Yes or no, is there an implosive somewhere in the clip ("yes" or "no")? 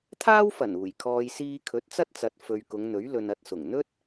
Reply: no